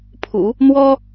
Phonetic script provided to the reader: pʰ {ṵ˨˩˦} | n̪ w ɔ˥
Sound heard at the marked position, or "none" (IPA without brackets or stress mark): ṵ˨˩˦